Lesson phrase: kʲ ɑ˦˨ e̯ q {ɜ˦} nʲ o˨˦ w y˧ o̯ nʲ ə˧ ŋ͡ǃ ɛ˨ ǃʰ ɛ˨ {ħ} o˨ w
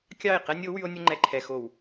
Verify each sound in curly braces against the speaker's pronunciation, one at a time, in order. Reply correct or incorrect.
incorrect: ɛ˦, incorrect: x

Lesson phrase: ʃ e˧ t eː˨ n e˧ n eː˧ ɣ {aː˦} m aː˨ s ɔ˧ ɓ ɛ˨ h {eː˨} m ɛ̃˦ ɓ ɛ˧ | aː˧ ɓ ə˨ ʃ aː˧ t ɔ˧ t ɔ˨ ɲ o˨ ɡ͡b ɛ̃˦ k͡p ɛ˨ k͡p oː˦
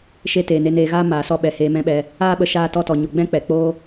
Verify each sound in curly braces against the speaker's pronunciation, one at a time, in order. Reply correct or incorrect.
correct, incorrect: eː˧

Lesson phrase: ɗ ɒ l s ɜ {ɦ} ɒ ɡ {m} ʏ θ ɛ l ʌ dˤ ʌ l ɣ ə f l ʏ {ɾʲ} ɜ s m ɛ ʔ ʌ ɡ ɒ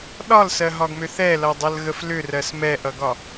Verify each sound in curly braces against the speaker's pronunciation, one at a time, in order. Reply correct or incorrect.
correct, correct, incorrect: r

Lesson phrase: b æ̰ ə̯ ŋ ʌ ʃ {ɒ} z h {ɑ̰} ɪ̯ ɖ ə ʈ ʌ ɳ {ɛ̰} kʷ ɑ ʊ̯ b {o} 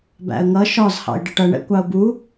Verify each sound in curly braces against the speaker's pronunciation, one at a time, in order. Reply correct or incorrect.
correct, correct, correct, incorrect: u

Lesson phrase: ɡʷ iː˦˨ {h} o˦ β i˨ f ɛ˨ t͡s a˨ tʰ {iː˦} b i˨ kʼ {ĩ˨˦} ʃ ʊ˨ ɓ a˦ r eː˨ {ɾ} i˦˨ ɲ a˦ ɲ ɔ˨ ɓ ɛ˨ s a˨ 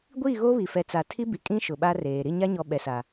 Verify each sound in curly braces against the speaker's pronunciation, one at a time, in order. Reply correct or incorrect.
incorrect: ɣ, incorrect: i˦, incorrect: ĩ˦, correct

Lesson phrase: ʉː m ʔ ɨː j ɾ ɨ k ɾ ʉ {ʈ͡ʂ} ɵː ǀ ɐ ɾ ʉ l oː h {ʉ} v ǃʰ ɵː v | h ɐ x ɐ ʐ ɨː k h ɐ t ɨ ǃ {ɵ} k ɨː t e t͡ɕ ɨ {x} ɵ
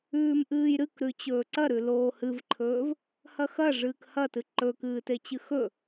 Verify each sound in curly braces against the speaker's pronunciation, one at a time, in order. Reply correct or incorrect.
incorrect: t͡ɕ, incorrect: ɨ, correct, correct

